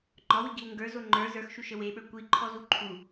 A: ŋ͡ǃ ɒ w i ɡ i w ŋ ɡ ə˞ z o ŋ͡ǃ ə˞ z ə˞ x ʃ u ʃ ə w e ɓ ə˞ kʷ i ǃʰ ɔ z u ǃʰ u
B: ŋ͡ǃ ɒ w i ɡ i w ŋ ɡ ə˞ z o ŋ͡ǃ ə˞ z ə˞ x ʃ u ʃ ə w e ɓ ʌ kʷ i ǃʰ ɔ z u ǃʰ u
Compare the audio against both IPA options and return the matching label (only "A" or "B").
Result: A